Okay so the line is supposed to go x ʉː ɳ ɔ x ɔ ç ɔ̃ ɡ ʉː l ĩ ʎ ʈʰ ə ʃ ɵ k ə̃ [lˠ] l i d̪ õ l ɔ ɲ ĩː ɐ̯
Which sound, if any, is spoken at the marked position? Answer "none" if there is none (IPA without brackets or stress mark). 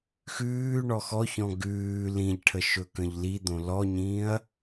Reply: ʎ